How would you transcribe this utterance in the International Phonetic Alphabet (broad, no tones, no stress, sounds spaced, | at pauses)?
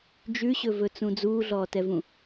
d͡ʒ ʉ ɕ ɵ v ɵ t͡s ũ d͡z uː ɮ ɔː t ɛ v ũ